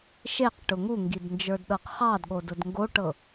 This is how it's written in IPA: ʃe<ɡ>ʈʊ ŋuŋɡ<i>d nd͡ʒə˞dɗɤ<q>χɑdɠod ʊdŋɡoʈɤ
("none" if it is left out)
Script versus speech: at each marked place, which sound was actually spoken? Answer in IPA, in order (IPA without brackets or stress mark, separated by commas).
q, i, q